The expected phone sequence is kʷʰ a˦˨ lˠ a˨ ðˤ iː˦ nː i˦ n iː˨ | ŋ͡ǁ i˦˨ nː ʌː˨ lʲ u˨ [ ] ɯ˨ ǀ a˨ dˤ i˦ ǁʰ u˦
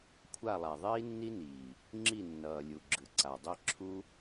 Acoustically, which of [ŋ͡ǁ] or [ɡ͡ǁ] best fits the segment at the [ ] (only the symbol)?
ɡ͡ǁ